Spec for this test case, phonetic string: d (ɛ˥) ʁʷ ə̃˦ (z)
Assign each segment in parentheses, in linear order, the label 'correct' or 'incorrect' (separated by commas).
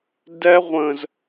correct, correct